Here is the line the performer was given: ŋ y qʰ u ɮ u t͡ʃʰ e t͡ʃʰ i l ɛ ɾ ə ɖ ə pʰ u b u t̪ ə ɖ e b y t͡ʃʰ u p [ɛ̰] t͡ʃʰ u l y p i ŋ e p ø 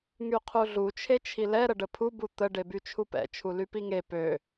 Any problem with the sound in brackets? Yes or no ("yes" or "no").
no